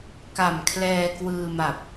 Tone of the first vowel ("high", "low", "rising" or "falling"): low